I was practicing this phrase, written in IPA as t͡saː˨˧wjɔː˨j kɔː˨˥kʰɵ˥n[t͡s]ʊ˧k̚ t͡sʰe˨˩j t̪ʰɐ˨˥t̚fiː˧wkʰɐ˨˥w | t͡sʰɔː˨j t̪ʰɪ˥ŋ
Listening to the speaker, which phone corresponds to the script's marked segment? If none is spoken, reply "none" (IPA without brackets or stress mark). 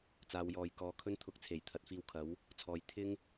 t̪ʰ